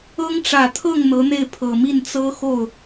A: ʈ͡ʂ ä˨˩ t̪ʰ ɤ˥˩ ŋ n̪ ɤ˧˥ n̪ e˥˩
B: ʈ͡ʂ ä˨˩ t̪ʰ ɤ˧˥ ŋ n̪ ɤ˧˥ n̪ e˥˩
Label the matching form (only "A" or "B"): A